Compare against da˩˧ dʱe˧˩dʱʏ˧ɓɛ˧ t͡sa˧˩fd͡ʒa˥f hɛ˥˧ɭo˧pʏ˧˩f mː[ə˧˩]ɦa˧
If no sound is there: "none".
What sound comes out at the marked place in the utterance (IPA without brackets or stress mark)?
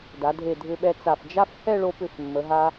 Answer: ə˩˧